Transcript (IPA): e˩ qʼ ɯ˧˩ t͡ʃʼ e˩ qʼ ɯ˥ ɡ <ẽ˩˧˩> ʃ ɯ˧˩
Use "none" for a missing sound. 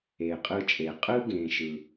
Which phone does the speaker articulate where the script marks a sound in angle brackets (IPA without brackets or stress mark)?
ẽ˩˧˩